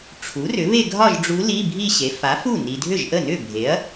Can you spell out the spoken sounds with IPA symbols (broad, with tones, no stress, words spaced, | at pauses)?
ʈ͡ʂʰu˩˥ rʏ˩˥βe˥˧ɡʱɒ˥˧ʒɖ͡ʐu˧˥ li˧˥˧ bʱi˥˧ɕe˩˥ fa˩˥fu˥˩ ni˨ dʱʏ˥˩ʒʔə˥˩nʏ˥˩bʱe˩˥ɐ̯